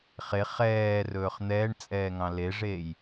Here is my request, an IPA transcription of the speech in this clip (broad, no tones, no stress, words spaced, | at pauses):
χe χɛːrɵːχ n̪ɛːɳt͡sʼɛː ŋɑ̃leʐeːj